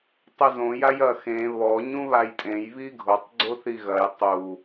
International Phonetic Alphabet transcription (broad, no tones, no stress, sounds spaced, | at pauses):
tˤ ɘ z õ j a j ɐ x ẽ β ɔ ɲ ũ β a j tʼ ẽ j β i ɡʱ o tˤ ɡ͡ǀ o θ i ɣ ɐ j tˤ u